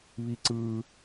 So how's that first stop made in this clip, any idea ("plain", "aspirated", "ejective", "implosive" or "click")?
click